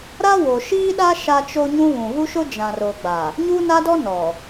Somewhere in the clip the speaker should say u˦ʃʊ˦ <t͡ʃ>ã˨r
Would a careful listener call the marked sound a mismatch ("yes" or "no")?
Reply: yes